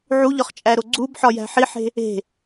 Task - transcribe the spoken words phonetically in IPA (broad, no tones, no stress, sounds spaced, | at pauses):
ʕ u ʎ ɒ χ t͡ʃʼ æ ɾ o ɡ͡ǀ u b ħ ɒ j æ̤ ħ i ħ e̤ | e̤